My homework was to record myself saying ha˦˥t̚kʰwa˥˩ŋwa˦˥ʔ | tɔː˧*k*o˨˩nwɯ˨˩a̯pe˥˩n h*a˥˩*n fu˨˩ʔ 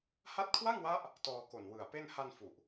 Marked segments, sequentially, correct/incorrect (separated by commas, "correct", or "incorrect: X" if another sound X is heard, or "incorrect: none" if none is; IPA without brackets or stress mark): correct, incorrect: a˧